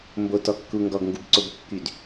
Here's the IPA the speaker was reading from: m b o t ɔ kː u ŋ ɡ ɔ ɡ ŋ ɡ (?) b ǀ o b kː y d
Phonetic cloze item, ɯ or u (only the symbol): u